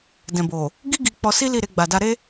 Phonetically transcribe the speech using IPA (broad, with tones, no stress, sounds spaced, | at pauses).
d ɛ̃˨ b o˨ | ɡ i˦ ɡ i˧ k͡p ɔ˧ s i˦ l i˦˨ ɾ e˧ ɡ͡b a˨ d a˧ ɾ e˦